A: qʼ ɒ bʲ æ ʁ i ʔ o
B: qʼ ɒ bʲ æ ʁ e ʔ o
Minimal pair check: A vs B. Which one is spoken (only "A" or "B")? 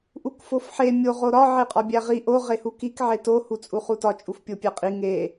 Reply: A